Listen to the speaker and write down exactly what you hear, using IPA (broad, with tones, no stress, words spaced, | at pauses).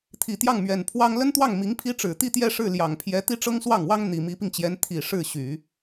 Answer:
t̪ʰi˨˩t̪jɑ˥˩ŋmɥɛ˨˩n pʰwɑ˥ŋ lə˥nt̪wɑ˥˩ŋ mi˧˥ŋpʰi˥ʈ͡ʂɻ̩˨˩ t̪i˥˧t̪jɛ˥˧ʂɻ̩˥˩ ljɑ˨˩ŋpʰjɛ˧˥ t̪i˥ʈ͡ʂɤ˥ŋswɑ˥˩ŋwɑ˥ŋ n̪i˨˩mi˧˥pi˧ŋt͡ɕjɛ˧˥n t̪ʰi˨˩ ʂɻ̩˥˩ɕy˨˩˦